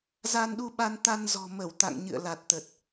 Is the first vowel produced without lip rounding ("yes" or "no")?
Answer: yes